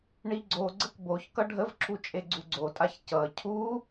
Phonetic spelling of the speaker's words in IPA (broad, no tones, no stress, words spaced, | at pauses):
ɳiɡ͡ǀoɡ͡ǀək boç kʌɖʱəvǁʰu t͡ʃʼeɡ͡ǀuɡ͡ǀotʼaç cʌ cʰu